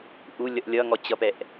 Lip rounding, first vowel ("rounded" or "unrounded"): rounded